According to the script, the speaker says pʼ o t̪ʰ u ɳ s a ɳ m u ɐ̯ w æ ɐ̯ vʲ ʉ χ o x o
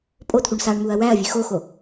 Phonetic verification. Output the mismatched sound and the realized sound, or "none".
χ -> x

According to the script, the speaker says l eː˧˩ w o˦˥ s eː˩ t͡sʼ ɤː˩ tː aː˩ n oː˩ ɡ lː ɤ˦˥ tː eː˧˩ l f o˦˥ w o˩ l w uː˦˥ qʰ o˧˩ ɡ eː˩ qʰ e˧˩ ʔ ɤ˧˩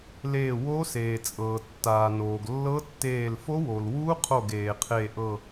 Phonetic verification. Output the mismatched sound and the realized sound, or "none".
none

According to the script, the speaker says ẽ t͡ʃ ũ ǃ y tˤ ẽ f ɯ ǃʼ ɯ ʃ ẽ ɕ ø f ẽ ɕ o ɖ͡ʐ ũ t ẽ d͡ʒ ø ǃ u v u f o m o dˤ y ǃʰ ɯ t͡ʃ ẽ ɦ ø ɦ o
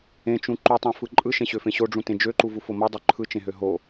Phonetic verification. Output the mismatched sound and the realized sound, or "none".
none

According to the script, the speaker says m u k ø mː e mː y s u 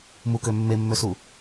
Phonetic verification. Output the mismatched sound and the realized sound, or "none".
y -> ø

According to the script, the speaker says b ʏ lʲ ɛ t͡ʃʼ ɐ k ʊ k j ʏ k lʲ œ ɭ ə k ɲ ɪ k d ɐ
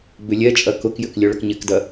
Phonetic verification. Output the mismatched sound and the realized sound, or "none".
none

